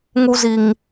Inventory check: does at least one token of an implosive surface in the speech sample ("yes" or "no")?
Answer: no